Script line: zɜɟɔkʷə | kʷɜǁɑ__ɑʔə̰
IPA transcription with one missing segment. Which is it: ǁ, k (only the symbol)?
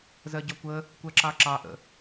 ǁ